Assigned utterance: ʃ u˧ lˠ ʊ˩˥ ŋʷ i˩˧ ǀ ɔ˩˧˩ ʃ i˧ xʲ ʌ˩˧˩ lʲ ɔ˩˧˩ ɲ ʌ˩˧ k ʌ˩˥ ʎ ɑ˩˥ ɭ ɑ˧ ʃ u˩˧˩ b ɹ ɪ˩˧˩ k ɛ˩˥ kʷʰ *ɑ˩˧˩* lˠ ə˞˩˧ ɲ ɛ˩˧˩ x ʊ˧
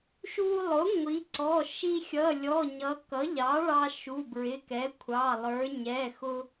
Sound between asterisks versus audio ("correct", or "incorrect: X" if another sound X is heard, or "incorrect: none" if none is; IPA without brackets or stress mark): correct